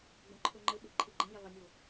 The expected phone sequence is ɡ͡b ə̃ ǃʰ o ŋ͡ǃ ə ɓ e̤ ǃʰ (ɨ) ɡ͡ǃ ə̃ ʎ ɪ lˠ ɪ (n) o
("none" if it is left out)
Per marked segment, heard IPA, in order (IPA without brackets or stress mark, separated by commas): ɨ, nʲ